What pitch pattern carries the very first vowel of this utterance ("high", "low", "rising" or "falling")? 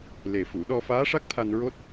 low